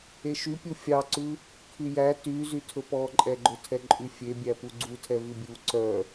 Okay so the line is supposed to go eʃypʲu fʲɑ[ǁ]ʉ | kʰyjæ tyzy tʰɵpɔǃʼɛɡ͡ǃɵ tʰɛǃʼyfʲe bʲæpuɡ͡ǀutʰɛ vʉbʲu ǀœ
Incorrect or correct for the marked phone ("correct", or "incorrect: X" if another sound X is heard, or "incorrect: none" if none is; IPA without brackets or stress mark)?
incorrect: ǀ